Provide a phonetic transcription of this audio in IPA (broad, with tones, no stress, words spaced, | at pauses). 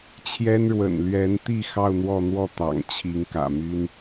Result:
t͡ɕʰjɛ˥n ɻwə̰˨˩nlɥɛ˧˥nt̪i˥˧ xɑ˥˧ʊ̯n̪wɔ˥˧n̪wɔ˥˩ t̪ɑ̰˨˩ŋt͡ɕʰi˧˥ŋ kä̰˨˩my˥n